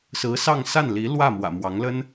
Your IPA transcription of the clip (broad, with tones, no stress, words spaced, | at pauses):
sɹ̩˧˥sɑ˥˧ŋ sa˥˩nli˧˥lwä˥˩ mwä̰˨˩mwɑ˧˥ŋlə˥n